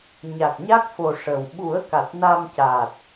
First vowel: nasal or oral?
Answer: oral